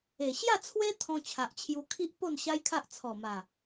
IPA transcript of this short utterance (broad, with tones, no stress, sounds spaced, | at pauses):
e˨˩ ɕ j a˥˧ t͡sʰ w e˦ t̪ʰ ɔ̃˧ t͡ɕʰ a˨ ʔ t͡ɕʰ j u˧ kʰ i˦ ʔ p o˥˧ n ɕ a˦ j kʰ a˦ ʔ t͡sʰ ɔ˨˩ m a˨˩